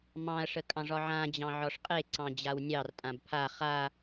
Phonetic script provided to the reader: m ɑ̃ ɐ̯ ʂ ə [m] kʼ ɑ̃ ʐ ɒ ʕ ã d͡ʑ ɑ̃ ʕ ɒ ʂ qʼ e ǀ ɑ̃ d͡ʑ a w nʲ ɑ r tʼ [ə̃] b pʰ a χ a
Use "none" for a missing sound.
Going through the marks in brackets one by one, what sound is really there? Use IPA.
none, ã

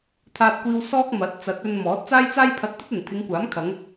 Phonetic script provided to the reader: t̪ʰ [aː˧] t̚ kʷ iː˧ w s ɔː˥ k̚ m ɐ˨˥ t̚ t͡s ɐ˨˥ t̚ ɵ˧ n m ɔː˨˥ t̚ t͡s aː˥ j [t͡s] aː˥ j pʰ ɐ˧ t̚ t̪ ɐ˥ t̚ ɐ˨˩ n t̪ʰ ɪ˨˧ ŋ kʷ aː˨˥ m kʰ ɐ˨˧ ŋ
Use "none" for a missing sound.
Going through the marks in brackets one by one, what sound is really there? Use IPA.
aː˧, t͡s

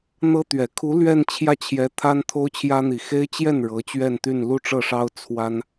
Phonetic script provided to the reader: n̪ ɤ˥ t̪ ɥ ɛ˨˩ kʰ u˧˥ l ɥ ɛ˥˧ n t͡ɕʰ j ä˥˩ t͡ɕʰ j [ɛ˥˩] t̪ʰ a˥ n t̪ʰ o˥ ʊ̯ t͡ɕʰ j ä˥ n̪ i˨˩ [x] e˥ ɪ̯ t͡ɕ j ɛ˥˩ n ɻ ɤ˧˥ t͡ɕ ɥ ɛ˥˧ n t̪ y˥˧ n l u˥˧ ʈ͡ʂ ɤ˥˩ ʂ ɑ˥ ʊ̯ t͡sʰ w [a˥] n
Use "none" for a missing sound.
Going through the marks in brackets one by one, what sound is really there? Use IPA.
ɛ˧˥, x, a˥

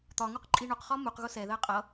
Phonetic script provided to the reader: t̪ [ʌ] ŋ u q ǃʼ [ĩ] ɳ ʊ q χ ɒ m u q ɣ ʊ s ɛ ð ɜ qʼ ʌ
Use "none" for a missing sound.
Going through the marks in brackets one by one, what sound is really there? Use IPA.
ɒ, i

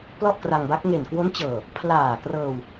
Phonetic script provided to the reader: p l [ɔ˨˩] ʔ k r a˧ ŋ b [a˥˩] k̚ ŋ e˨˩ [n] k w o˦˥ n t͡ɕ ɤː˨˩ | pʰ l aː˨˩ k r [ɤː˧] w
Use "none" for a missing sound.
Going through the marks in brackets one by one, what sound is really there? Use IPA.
ɔ˥˩, a˦˥, n, ɤː˧

